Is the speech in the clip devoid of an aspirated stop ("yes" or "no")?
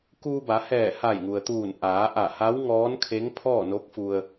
no